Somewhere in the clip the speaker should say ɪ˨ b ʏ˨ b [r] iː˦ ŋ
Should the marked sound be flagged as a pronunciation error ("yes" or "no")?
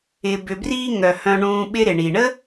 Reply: no